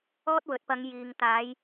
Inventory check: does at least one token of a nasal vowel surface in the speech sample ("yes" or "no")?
no